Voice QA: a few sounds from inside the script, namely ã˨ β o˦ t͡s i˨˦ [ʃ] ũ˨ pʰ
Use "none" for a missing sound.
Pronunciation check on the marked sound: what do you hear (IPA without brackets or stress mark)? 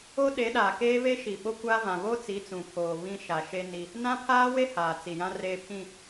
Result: t͡s